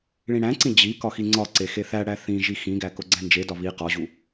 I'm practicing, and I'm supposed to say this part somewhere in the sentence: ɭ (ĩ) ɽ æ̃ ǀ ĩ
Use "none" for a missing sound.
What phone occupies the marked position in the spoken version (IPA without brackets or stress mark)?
ĩ